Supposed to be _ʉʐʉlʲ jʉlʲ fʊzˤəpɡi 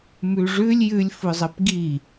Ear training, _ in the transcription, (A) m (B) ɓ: A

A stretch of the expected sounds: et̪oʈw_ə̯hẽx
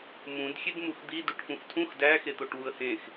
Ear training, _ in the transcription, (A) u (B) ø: A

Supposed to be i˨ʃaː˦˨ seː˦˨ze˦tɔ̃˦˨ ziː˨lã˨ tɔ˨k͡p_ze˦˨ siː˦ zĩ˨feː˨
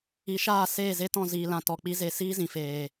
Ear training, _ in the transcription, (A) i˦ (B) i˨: A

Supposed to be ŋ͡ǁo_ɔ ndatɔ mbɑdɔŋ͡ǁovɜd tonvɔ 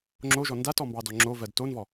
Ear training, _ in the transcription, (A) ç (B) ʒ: B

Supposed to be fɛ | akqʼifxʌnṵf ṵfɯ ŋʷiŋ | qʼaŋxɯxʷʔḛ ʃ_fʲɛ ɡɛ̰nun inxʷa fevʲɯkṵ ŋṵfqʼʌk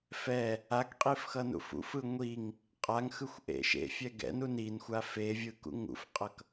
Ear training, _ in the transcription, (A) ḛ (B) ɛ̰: A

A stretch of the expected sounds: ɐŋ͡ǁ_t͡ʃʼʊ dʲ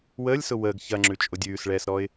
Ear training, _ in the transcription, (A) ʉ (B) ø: A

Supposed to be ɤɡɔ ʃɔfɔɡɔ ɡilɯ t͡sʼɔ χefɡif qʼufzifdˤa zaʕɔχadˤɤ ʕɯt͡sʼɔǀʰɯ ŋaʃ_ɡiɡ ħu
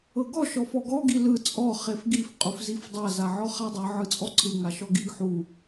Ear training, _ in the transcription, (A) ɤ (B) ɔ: B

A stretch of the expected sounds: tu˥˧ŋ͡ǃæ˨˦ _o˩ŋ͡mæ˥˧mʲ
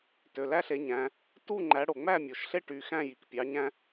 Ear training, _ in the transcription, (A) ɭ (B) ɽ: B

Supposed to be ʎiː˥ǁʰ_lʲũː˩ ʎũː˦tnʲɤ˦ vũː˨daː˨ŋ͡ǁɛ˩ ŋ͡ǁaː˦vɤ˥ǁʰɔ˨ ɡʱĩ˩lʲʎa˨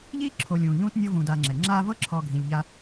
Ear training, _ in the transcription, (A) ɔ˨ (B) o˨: B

